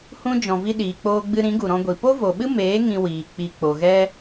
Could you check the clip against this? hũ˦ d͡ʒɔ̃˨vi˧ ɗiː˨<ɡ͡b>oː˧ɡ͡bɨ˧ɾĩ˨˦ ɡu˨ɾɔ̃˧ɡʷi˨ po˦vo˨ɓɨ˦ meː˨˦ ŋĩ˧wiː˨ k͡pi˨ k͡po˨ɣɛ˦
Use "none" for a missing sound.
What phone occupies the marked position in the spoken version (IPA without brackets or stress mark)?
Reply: k͡p